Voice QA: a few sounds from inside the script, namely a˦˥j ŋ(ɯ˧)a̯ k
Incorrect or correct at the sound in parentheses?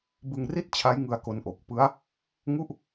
correct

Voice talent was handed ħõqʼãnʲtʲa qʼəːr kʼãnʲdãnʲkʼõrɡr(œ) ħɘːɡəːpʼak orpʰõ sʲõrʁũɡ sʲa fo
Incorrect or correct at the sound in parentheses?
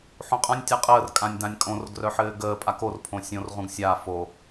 correct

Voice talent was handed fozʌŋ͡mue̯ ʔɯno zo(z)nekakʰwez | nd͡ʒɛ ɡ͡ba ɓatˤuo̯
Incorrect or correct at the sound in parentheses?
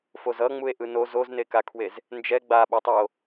correct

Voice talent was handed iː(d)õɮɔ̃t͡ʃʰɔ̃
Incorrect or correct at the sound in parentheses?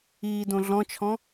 correct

